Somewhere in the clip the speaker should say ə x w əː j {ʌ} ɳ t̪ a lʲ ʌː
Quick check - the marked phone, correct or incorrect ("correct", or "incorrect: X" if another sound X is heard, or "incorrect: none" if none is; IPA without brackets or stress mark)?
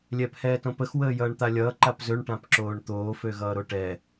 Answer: incorrect: ʌː